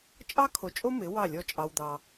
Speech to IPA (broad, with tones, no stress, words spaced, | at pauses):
t͡ʃʼɑ˦kʰo˨t͡ʃʼo˦ mɪ˨˦ wɑ˦˨lʲɔ˦˨t͡ʃʼɑ˧wd̪ɑ˧